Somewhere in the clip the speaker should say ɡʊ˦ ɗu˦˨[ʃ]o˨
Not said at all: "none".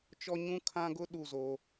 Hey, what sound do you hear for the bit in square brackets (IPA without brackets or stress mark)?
z